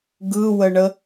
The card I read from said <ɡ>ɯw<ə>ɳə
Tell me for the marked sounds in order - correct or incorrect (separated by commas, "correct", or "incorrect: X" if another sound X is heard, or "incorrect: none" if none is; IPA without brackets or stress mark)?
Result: correct, correct